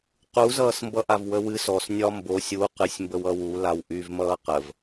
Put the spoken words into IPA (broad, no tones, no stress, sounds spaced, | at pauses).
q u z ʌː s m b ʌ ʔ a v w ə w ɨ s ɔ s nʲ ɒ m b o sʲ u q ɨ sʲ m b ə w ʌ w u l a w ʔ y v m ʌː q ə v